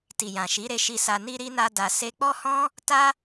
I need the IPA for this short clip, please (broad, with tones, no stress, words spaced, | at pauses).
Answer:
ti˨jã˨ʃi˨˦ɾe˧ ʃi˧sa˧ ni˧ ɾi˦na˦ da˧se˦ k͡pɔ˦hɔ̃˦ | ta˦